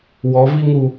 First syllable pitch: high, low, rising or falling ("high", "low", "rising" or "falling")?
rising